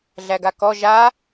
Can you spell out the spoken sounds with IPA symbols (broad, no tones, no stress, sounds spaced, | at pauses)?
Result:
ɮ æ ɡ a k ɔ ʒ a